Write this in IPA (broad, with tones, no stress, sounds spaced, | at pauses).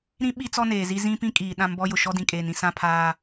ɾ ĩ˦ ɓ i˦ t͡s ɔ˦ n eː˨ z i˦ z ĩ˦ p ĩ˦ kʼ iː˨ ɗ ã˦ m b ɔ˦ j ʊ˨ ʃ ɔ˦ d ĩ˨ kʼ eː˨ n ĩ˦ s ã˦ pʰ aː˦